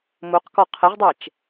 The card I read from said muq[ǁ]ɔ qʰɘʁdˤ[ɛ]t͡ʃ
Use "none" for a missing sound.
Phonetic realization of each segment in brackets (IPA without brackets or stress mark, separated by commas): k, ɛ